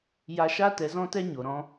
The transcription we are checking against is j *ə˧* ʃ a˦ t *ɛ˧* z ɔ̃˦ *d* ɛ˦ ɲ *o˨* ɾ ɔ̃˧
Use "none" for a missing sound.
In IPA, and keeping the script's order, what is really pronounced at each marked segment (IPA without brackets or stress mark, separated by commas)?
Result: a˧, ɛ˨˦, t, o˨